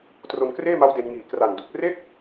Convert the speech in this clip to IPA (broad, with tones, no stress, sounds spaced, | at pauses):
t r o˧ n k r eː˥˩ m a˦˥ w d e˧ n ŋ iː˨˩ k r a˨˩ n d u˨˩ k̚ r e˥˩ k̚